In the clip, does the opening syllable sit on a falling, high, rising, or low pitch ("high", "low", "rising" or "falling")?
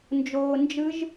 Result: low